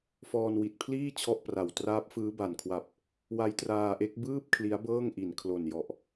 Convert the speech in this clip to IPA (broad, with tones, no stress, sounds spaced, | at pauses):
f ɔː˧ n w i˨˩ t̚ pʰ l iː˥˩ t͡ɕʰ ɔ˥˩ ʔ p r a˨˩ w t r aː˦˥ p̚ f ɯː˦˥ b a˨˩ n kʰ w a˨˩ p̚ | w a˦˥ j t r aː˧ ʔ e˦˥ k̚ b ɯː˥˩ p̚ kʰ l i˦˥ a̯ b ɤː˥˩ ŋ ʔ i˨˩ n kʰ l o˨˩ n j ɔ˨˩ ʔ